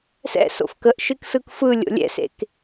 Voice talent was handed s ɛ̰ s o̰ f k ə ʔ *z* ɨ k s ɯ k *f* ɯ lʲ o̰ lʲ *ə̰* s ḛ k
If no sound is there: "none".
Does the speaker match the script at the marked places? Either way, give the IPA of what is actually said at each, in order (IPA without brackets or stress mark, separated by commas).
ʃ, f, ɛ̰